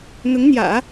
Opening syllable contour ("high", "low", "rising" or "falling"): rising